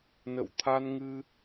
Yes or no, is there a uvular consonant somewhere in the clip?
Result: no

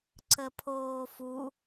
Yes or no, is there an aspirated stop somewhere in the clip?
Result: yes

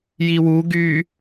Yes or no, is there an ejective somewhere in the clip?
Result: no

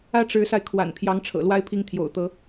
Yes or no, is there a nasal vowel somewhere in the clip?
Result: no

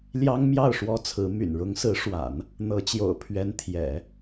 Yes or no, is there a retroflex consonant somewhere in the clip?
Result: yes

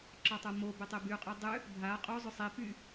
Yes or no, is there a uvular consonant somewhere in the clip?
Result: yes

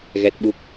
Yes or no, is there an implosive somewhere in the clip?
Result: yes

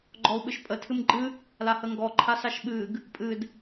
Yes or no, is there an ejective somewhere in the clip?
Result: yes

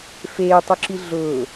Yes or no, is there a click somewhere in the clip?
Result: yes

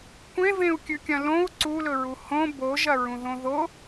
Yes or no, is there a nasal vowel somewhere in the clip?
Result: yes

